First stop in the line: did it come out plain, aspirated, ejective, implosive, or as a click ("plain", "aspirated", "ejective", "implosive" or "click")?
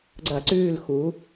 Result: click